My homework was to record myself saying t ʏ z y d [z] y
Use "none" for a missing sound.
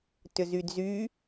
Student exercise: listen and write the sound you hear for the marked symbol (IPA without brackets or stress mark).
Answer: z